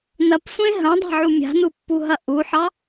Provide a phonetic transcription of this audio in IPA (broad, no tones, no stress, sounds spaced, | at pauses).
n ɐ p sʷ ẽ ɦ ɐ̃ dˤ a̤ ʕ u mʲ a̤ n u pː u ɦ ɐ ʔ u ħ ɑ